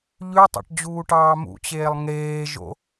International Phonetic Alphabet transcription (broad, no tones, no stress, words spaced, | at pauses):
ʎʉtˤɑ̰ʈd͡ʑuːʈɑː mṵt͡ɕeːlˠ ŋeːʒo̰